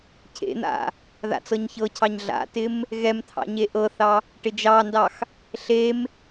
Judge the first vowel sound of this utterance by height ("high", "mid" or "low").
mid